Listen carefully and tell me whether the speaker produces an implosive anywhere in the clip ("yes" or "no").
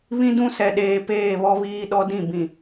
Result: yes